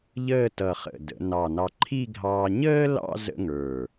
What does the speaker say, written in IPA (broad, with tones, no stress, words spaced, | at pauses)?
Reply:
ʎəː˥˧tʌ˧˩ χə̰˧˩də̰˩˧nɑ˧˩nɑ˧ ǃʰi˥˧ ɡʱɑ˧ɲəː˥lɑ̰˥˧ zə̰˥ŋə˞˧˩